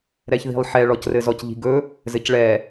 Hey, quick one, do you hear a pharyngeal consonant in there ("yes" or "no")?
yes